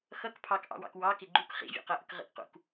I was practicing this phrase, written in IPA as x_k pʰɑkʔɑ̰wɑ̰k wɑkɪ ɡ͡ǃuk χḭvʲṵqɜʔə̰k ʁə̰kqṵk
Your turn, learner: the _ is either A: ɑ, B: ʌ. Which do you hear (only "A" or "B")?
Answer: B